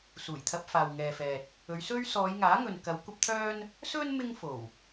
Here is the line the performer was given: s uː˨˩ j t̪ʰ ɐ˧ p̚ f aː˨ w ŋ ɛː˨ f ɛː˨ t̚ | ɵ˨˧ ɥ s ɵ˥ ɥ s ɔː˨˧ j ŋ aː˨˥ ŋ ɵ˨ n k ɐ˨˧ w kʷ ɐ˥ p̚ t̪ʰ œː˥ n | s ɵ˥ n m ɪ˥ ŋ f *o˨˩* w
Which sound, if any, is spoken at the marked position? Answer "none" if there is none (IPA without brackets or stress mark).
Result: o˨˩